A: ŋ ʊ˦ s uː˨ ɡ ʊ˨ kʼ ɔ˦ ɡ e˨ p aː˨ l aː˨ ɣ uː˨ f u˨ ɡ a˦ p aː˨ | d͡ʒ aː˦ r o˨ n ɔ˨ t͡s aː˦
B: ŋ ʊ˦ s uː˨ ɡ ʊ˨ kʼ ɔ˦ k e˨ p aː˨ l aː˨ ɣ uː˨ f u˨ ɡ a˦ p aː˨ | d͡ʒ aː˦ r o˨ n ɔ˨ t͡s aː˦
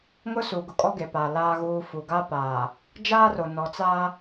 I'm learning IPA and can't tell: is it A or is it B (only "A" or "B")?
A